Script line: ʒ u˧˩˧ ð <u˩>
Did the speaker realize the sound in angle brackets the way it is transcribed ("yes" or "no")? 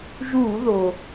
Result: no